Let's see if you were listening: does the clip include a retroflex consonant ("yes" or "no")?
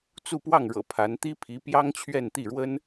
yes